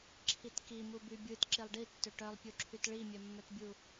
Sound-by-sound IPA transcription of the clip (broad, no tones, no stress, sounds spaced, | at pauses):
ǁʰ i t k i m u b y bʲ ɯ t ǁ i lˠ ɖ i tː ø ʈ œ lˠ pʲ u ǁʰ y t ɭ i mʲ œ mː œ t bʲ u